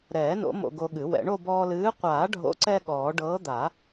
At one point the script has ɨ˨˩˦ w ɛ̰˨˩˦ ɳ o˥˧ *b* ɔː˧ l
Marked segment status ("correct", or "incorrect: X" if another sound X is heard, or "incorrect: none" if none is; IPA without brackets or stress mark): correct